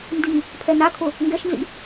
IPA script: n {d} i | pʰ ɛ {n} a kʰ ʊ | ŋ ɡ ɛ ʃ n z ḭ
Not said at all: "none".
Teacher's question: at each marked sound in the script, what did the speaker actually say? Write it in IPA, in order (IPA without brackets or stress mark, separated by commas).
d, n